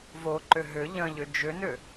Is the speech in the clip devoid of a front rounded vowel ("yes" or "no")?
no